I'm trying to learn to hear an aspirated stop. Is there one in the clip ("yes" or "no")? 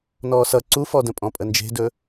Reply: no